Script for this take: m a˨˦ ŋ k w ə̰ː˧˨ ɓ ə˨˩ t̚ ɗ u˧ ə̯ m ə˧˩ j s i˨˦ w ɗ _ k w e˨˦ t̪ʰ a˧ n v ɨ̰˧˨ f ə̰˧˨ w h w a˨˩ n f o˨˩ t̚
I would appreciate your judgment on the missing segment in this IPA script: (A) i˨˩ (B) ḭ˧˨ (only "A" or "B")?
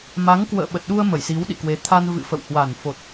B